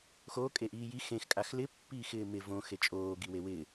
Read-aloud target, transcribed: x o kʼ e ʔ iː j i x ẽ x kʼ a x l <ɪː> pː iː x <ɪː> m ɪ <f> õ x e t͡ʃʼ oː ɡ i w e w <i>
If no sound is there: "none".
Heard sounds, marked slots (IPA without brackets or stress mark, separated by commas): ɪ, ɪː, v, ɪ